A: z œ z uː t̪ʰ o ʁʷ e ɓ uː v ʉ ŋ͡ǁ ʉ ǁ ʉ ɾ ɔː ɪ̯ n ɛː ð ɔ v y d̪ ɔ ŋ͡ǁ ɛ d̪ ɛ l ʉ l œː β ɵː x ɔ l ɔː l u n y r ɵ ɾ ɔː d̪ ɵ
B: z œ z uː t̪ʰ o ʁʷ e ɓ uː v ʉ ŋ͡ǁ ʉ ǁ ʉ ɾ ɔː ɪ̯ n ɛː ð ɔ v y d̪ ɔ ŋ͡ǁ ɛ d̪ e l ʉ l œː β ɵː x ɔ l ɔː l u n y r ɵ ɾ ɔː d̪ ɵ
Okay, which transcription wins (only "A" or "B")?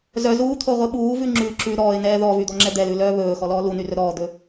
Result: A